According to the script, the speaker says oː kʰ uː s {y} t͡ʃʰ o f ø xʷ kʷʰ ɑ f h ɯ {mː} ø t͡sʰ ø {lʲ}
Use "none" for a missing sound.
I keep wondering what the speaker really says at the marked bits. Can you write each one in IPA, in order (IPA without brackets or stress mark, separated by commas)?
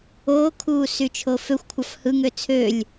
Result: y, ŋ, lʲ